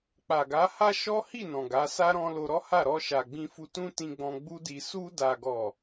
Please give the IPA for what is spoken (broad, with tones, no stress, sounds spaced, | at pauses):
k͡p a˨ ɡ a˨˦ h a˦ ʃ ɔ˦ h i˦˨ n ɔ̃˨ ɡ a˨˦ s a˦ ɾ ɔ̃˧ l o˧ ɾ ɔ˦ h a˦˨ ɾ ɔ˧ ʃ a˨ ɡ͡b ĩ˧ f u˧ t ũ˦ t ĩ˧ ɡ͡b ɔ̃˧ ɡ͡b u˦ d i˧ s u˧ d a˨ ɡ ɔ˨